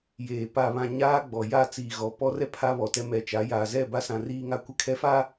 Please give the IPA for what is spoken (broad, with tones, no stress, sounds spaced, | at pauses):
j eː˨ p a˨ β ã˨ ɲ aː˦ ɡ͡b ɔ˨ j a˦˨ t͡s iː˨ ɣ ɔ˨ p ɔ˦ r ɛ˦ pʰ a˦ β ɔ˨ t ɛ˦ m ɛ˨ t͡ʃ a˨˦ j aː˨ z ɛ˦˨ b a˦ s ã˨ r iː˦ ŋ a˦ kʷ ɪ˦ kʰ ɛ˦ f a˦